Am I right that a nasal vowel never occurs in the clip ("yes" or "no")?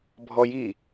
yes